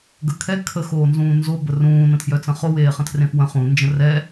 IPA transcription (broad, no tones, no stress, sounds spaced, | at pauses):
ɡ ə kʰ ɛ kʰ ə x oː n z ũː n z o b ə r ũː n ə̃ tʰ j œ t͡s ə̃ χ o w eː χ ə̃ tʰ r ẽ f w ə̃ χ ũ n d͡ʒ ə̃ r ɛ